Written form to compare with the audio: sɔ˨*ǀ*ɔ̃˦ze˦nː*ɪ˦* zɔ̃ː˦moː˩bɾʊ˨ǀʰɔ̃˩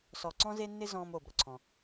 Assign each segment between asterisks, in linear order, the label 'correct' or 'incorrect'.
correct, correct

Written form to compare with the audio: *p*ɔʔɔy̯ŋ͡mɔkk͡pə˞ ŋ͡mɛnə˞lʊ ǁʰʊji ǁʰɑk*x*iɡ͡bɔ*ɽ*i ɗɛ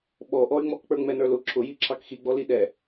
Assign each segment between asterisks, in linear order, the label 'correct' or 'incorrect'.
incorrect: ɓ, correct, incorrect: l

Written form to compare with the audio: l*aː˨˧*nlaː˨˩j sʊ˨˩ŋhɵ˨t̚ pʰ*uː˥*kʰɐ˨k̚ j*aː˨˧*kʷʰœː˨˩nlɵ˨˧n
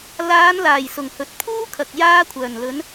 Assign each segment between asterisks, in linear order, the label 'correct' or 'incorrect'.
correct, correct, incorrect: aː˧

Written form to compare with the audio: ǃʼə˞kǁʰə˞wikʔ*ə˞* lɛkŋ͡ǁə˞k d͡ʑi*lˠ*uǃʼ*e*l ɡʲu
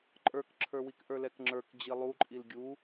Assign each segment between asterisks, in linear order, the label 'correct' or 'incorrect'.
correct, correct, incorrect: i

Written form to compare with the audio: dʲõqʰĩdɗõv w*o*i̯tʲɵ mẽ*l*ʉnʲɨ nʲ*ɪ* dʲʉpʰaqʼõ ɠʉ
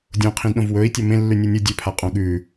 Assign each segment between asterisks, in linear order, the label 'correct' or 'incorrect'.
incorrect: ɵ, incorrect: lː, incorrect: ɨ

